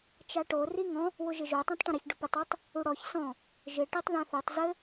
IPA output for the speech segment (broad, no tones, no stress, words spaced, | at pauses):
t͡ʃaʈo riŋɔ̃ | wʊʒɪʒo tˤãtˤʈə̃ɾɪç ɖʊpɘtˤ ɘtˤ | uɽɔç sɔ̃ | ʒɪ ʈitˤðãθotˤ zɘ